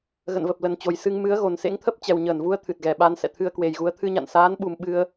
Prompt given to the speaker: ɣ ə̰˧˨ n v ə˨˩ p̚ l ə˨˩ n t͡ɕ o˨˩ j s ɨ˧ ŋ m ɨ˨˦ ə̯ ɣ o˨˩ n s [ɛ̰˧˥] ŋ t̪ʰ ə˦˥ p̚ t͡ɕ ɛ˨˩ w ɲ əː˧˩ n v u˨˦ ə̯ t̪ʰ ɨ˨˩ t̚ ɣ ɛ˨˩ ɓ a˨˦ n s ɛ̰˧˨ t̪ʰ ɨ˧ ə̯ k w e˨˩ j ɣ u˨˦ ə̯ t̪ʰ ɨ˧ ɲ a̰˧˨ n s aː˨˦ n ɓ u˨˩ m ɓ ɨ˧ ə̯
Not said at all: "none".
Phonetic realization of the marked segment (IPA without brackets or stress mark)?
ḛ˧˥